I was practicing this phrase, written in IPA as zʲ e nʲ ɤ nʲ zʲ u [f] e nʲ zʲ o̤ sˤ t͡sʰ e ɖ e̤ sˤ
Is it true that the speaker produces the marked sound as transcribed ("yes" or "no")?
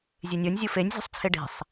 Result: yes